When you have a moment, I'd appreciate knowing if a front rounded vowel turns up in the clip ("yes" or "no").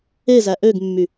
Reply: yes